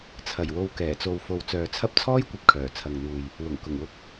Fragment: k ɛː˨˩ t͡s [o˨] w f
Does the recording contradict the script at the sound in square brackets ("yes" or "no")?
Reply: no